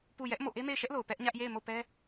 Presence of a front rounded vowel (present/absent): absent